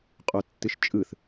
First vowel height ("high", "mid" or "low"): mid